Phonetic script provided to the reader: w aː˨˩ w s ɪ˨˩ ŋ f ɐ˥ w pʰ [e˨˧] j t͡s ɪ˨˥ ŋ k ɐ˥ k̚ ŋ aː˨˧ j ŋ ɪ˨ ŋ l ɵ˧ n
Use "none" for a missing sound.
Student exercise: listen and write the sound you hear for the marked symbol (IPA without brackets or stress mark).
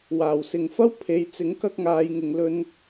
e˨˧